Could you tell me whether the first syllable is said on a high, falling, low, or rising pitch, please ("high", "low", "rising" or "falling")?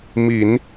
low